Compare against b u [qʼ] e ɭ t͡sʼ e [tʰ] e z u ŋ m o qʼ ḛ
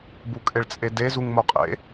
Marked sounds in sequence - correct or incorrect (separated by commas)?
incorrect, incorrect